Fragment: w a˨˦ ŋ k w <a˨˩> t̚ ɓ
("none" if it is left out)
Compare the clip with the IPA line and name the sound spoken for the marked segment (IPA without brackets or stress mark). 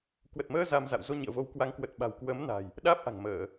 ə˨˩